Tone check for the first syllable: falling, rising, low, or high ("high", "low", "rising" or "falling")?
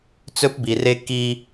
high